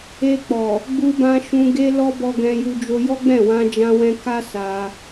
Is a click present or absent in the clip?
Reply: absent